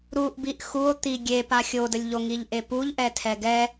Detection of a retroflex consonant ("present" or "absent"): absent